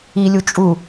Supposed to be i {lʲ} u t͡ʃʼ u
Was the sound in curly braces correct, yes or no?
yes